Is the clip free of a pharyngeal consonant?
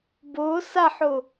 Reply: no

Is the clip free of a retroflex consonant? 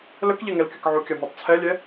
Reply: yes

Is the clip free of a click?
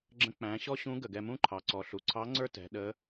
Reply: no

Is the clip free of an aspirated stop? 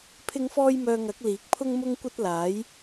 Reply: no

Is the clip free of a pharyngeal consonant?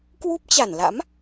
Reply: yes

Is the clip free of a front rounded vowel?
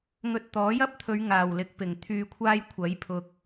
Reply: no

